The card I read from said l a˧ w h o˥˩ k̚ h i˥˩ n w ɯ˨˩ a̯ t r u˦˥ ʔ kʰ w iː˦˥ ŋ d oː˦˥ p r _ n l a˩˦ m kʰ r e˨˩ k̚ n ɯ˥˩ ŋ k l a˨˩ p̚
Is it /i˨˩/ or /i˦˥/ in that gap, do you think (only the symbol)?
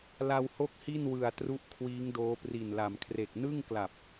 i˨˩